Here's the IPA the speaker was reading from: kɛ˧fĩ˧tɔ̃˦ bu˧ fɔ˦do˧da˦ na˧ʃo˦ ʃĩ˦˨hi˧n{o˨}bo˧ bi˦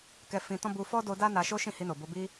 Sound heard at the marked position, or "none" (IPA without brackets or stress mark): o˨